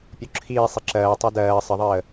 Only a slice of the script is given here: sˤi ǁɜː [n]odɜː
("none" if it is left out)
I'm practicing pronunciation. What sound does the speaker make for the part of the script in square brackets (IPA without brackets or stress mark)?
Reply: tˤ